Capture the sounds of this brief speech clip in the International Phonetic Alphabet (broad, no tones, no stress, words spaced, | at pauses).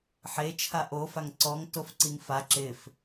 ħet͡ʃʰa ʔofaŋ ǀɔŋ tofǀiŋfa ǁɪf